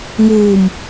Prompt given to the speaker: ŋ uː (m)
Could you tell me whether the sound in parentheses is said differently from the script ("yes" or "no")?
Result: no